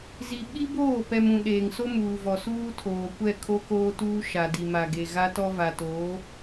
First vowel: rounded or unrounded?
unrounded